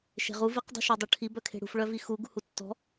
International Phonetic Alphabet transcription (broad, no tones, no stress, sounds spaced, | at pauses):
ʃ e̤ ʁ u v i q dˤ ṳ ʃ ɔ dˤ u ʈʰ i b œ kʰ e̤ ɽ ṳ f ɭ œ v i x u ɡ ṳ h u tː ɔ̤